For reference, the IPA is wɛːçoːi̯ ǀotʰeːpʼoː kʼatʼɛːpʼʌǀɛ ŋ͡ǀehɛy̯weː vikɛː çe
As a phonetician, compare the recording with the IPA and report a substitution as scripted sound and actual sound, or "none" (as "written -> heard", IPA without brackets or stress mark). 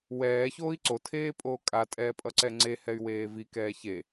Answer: none